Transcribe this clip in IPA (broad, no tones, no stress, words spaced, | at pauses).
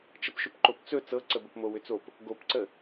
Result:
t͡ʃəpʃʏpǃopt͡sɵ t͡sɤǀəbəp mowʏt͡sop | ɡopǀə